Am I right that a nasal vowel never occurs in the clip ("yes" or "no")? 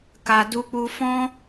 no